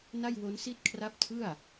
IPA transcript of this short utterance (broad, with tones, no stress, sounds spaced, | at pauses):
n a˥˩ j w o˦˥ n s i˥˩ t̚ kʰ r a˦˥ p̚ tʰ ɯ˥˩ a̯